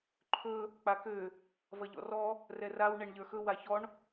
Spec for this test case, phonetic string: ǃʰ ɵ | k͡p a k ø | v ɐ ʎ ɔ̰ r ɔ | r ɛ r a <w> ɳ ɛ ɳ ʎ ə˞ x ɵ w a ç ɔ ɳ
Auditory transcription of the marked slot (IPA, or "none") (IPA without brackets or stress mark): w